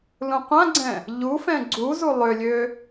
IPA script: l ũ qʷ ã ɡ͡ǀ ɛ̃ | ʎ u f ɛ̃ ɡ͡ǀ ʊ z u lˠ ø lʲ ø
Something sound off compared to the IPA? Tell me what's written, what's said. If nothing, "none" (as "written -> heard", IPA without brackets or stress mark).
ʊ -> u